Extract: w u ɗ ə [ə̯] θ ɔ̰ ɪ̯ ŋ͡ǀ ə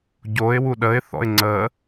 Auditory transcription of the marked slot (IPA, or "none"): ɪ̯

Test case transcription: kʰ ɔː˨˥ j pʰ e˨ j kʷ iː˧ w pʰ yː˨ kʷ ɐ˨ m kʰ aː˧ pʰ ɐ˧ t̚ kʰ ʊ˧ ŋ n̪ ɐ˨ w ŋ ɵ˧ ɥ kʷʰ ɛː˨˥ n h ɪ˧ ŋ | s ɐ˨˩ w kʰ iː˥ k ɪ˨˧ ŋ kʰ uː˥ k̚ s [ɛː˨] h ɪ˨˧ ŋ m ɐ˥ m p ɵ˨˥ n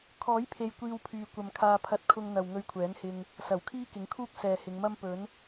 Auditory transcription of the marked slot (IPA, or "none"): ɛː˨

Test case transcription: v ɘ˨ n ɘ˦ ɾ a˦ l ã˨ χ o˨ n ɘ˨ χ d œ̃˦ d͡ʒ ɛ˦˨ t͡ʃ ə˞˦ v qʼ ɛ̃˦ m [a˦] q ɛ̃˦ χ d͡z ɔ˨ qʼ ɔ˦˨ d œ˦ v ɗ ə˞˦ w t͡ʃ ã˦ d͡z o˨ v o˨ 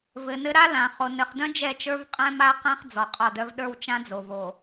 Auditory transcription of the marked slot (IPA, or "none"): a˦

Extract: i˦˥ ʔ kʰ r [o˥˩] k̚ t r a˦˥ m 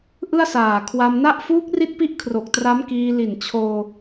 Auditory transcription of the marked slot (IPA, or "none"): o˨˩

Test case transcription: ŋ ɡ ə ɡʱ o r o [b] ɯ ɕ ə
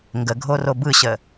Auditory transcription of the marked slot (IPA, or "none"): b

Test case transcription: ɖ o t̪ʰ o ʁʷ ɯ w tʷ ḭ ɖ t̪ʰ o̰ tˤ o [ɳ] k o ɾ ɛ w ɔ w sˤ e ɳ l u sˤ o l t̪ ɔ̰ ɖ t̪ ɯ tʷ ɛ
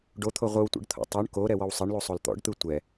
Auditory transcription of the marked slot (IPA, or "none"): ɳ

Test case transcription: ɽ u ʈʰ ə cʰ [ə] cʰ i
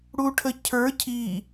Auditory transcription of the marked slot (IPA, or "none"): ə˞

